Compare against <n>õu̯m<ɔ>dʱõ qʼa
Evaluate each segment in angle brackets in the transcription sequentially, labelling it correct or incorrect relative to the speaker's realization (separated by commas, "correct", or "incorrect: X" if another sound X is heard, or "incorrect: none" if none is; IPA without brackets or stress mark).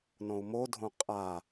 correct, incorrect: o